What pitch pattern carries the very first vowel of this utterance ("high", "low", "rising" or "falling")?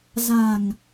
low